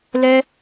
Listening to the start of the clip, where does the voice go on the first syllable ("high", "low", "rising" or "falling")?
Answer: high